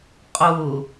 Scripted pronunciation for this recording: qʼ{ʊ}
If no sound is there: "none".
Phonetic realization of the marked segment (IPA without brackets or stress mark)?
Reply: ʊ